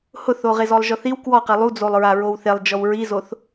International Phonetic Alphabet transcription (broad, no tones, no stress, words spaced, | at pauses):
hʊθoʁez ɔlˠʒɔθiw kwɔqe lˠud͡zolˠɹa ɹowθelˠ d͡ʒɔwɹizoθ